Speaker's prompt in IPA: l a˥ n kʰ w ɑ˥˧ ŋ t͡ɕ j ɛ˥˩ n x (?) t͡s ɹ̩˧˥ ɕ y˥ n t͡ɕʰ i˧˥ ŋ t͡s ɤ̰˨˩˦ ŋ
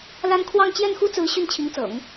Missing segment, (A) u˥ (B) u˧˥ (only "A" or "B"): A